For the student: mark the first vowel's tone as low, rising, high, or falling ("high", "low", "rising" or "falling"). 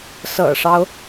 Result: low